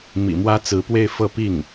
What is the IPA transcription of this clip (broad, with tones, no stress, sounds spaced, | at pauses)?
m ḭ˨˩ m w ä˥ t͡s ɹ̩˧˥ p w e˥˧ ɪ̯ f ɤ˥˧ p i˥˩ ŋ